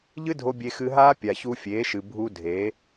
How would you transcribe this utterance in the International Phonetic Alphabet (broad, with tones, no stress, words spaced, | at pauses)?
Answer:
ʎɨ˦dʱo˧ bʲe˧xɨ˧ɦaː˦ pʲa˨çu˧fʲeː˨˦ʃɨ˨ bʱu˧ dʱeː˨˦